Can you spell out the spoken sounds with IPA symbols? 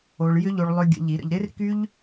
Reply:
o˧ɭ jʏ˦ʎo˧ɭlˠʏ˧ ɡʲə̰˨˦ʎi˨˦ɾə̰˧ʎ ɾɪ˦rky˦ʎ

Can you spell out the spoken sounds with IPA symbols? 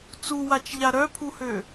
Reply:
t͡suwat͡ʃʎa ɾœpʰuhø

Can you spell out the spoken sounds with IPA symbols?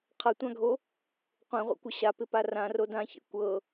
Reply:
qʰʌtʷãɡʱo | qʷẽʁʷḛkʷɪ ɕapɪpa rãro dãçḛ kʷɤ

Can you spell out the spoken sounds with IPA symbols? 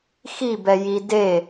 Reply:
xibɛji de

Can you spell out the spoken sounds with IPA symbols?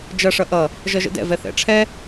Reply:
d͡ʒʌʂʌ ʔʌ | ʒʌʒə̰dɛ̰vɛ θɛ̰ʈ͡ʂʰɛ

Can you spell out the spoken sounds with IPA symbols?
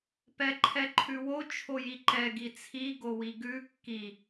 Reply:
pɛǃʰɛǃʰʉwo t͡ʃʰojiǃɛ ɡit͡sʰi ɡowiɡʉ kːi

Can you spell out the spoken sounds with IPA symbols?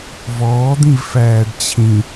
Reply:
vɔːd̪ĩv fæːɖt͡ɕʰĩ

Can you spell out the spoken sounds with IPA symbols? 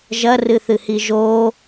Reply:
ʒɐrɨθɨhi ʒo

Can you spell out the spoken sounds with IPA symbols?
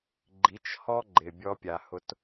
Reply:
ɡ͡ǃi˨˦t͡ʃhɔ˦ ɡ͡ǃɪ˨bʲɔ˧pʲa˨hʊ˧t

